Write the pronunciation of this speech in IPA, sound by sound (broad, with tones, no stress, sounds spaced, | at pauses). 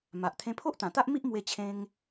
m a˨ ʔ t̪ʰ ẽ˧ pʰ o˦ ʔ t̪ ã˨˩ t̪ a˦ ʔ m i˦ ʔ m w e˧ t͡ɕʰ ẽ˧ ŋ